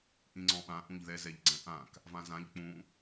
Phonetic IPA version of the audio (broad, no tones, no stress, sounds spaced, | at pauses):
ʔ ĩ ŋ͡ǀ ɔ̃ ɓ ã ʔ ũ ʎ ð ɛ z ɛ ʎ ɡ͡ǀ ɛ̃ ʔ ã k | v ã z ã ʎ k͡p ũ